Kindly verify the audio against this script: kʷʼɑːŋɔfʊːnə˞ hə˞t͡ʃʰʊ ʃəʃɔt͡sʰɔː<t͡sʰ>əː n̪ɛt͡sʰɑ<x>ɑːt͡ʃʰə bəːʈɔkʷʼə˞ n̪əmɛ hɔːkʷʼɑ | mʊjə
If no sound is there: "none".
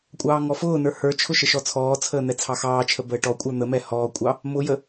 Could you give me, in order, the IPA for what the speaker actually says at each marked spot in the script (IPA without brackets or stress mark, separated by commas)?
t͡sʰ, x